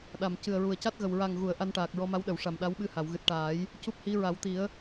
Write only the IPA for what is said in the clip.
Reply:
ɗa˨˩m cɨ˨˩ə̯ɹu˨˩ə̯ca˦˥t̚ɣə˨˩w ɹa˨˩ŋɣu˨˩˨ə̯ ʔa˧nʈaː˨˩k̚ɹɔ˧ma˧˥w ɗə˨˩˨wʂa˨˩mɗa˧˥wɓɨ˧ ha˨˩˨wɣɨ˨˩t̚ʈaː˨˩˦j | cu˦˥p̚hi˧˥ ɹa˨˩˦wt̪i˨˩˦ə̯

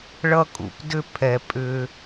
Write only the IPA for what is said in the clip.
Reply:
ɭʌ˥kʼṵ˩pdʏ˥ pʰɛ˩ pʼʏ˧

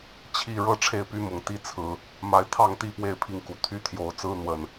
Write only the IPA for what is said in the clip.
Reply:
t͡ɕʰi˥˨ ɻɤ˥˨ʈ͡ʂʰe˥˨ɪ̯py˦mʊ˨˩ŋ t̪i˦t͡sʰɹ̩˨˩ | ma˦ɪ̯ t̪ʰɑ˥˨ŋt̪i˥˨ pwe˥˨ɪ̯pʰi˨˦ŋku˨˩ t̪ʰy˦ t̪ʰjo˨˦ʊ̯ t͡sɹ̩˦n̪wə˨˩n

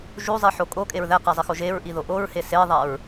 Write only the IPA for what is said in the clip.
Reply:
ʒuzˤiħo kʼokʼeɹ ðæqæzˤixo ʒeɹʔiðo ʔoɹhe seðˤæɹ

